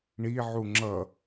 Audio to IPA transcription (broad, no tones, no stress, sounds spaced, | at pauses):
ɳ i ʕ u ŋ͡ǁ ʌ